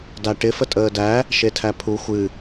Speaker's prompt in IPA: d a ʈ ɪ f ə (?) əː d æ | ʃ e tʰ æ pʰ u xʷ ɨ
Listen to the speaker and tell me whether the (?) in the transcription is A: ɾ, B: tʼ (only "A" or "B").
B